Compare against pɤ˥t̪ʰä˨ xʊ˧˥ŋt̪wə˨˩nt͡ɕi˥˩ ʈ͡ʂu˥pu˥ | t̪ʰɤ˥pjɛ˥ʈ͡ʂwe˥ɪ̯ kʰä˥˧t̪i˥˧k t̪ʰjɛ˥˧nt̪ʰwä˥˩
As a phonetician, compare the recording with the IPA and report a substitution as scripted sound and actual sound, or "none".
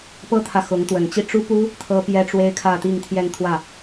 k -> ŋ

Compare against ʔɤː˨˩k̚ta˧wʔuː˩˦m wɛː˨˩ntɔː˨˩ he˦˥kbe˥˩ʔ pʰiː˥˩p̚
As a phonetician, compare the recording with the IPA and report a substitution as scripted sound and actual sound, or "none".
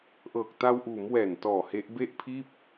k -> ʔ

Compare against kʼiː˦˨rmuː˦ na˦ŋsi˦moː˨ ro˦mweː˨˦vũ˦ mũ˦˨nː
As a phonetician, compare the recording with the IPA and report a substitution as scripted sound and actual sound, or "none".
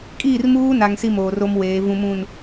nː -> n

